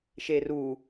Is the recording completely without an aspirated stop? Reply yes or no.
yes